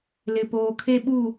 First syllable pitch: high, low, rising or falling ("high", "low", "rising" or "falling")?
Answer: low